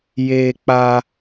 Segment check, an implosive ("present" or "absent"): absent